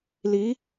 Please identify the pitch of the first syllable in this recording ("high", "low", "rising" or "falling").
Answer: rising